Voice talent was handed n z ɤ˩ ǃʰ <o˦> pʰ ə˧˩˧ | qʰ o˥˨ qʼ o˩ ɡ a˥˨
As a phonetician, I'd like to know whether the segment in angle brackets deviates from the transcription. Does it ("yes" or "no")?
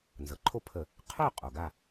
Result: no